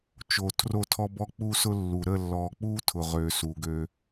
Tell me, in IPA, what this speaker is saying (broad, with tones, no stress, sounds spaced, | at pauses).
t͡ʃ o˨ tʰ r o˦˨ tʰ ɔ˦ b ɔ˦ k͡p u˦ s ʊ˦ lː u˨ ɾ ə˦˨ lː ɔ˨ k͡p u˦ tʰ ʊ˨ ʁ ø˨ s u˨ ɡ ø˦